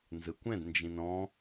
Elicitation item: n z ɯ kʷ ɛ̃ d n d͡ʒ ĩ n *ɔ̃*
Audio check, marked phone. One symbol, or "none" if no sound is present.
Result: ɔ̃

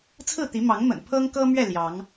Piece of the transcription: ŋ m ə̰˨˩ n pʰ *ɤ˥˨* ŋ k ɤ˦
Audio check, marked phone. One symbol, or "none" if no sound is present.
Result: ɤ˦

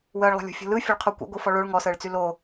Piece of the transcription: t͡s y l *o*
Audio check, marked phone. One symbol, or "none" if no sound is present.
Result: o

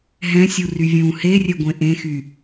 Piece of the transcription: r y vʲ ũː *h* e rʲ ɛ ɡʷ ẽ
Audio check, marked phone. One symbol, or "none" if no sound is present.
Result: h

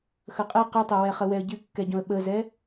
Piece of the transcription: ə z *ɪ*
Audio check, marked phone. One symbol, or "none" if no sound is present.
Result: ɛ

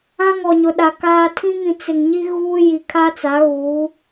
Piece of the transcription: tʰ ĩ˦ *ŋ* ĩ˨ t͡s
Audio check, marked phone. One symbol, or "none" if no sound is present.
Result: ŋ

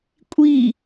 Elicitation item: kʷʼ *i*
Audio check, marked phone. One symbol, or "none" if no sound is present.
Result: i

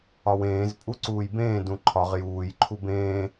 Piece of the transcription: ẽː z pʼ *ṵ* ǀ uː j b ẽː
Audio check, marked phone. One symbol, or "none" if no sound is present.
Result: u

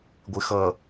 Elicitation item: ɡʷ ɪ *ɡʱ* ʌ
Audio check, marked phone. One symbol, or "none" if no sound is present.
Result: x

